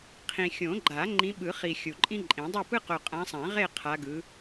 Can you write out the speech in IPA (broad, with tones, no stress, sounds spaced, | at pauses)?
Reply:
qʰ ĩ˨ xʲ õ˨˩˦ ɡ͡ǃ a˨˩˦ ŋ͡ǃ ĩ˨˦ ɓ ɯ˨˩˦ χ i˨ xʲ u˨ ǃʼ ĩ˦ ǃʼ ĩ˨˩˦ dˤ o˥˨ p ɯ˦ q o˨ qʼ ã˨˦ sˤ ã˨˩˦ ʁ e˥˨ qʰ a˨˦ ɡ ɯ˨˦